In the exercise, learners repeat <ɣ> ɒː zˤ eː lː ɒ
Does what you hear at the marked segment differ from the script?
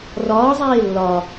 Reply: yes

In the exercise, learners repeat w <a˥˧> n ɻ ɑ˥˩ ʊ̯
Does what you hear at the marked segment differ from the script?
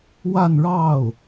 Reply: no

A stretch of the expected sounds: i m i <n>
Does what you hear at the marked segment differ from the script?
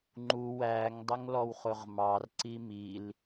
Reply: yes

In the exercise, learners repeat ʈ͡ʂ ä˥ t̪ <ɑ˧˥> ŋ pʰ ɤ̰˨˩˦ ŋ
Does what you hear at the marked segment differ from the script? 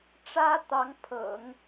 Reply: no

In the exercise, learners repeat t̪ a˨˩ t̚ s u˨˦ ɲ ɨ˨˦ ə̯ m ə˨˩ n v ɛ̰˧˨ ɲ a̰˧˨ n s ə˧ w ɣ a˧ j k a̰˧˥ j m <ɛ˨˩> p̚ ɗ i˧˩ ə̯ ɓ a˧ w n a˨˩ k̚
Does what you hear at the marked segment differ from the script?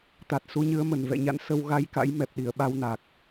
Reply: no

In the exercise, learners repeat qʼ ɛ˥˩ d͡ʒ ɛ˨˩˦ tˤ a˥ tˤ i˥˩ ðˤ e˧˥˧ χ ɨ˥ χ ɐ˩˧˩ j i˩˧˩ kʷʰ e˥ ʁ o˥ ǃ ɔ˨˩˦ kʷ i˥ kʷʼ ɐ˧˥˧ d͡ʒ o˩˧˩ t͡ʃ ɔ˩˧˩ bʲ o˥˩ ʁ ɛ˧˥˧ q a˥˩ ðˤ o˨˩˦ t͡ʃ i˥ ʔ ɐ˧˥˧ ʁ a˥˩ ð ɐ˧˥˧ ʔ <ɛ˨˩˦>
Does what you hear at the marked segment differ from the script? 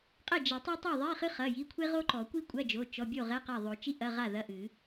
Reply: yes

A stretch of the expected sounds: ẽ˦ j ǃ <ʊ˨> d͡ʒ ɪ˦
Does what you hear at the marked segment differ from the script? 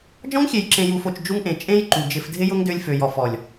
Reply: yes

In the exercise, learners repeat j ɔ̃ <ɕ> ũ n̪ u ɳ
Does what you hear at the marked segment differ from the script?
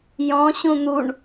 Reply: no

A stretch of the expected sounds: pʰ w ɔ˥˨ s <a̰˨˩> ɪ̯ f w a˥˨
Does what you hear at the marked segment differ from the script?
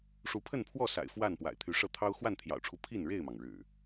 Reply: no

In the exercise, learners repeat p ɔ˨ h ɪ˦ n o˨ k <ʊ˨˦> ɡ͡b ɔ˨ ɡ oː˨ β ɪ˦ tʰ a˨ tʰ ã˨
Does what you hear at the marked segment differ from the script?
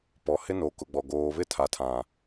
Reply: yes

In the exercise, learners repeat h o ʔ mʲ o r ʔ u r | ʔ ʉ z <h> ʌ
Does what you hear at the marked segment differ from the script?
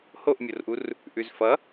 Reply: yes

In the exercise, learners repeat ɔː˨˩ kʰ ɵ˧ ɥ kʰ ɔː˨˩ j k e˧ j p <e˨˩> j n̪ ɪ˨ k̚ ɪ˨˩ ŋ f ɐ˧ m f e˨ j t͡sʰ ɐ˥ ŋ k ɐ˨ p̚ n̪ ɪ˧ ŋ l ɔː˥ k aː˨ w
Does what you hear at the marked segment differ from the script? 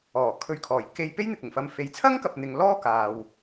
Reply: yes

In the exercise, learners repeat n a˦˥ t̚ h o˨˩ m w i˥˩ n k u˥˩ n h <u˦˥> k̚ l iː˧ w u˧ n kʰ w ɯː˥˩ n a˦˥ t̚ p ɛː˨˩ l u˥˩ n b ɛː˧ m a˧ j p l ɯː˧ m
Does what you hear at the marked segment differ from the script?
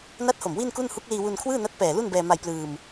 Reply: no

